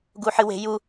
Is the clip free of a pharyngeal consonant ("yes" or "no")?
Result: no